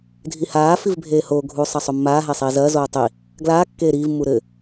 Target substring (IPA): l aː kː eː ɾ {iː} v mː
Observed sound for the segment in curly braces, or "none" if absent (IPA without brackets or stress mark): iː